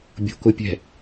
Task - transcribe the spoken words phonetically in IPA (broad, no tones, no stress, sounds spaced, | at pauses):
bʲ o̤ k ʊ pʲ ɛ̤